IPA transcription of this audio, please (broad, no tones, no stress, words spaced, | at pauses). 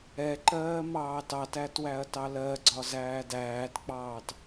ɛǃɜː mɑːtɑtæ twæɐ̯tɑlɜɡ͡ǀɒ zæːdæːtk͡pɑːt